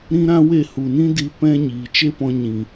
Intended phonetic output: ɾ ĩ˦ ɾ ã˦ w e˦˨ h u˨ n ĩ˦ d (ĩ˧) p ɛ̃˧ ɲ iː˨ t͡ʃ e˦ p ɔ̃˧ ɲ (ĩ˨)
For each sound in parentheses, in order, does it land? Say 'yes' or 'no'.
no, yes

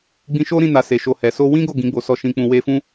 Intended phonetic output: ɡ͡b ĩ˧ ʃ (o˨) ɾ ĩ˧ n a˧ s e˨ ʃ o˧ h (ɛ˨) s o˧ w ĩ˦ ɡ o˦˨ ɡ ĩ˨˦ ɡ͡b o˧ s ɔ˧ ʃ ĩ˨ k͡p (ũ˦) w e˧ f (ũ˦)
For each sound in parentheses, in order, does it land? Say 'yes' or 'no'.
no, yes, no, yes

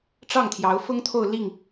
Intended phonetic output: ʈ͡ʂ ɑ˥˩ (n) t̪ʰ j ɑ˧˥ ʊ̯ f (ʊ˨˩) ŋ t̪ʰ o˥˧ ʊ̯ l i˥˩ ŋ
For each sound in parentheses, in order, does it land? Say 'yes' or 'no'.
no, no

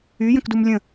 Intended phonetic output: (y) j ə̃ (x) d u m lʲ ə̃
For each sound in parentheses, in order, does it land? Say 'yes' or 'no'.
yes, no

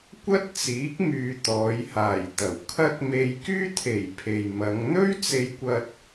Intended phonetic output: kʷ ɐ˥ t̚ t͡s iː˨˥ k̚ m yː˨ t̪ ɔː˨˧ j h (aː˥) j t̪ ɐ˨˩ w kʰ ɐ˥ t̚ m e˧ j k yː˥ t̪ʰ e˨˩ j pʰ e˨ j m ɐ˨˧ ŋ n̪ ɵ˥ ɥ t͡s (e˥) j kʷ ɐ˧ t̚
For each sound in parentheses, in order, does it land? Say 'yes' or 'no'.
no, no

